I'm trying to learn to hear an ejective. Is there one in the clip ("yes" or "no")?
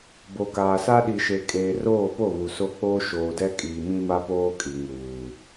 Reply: yes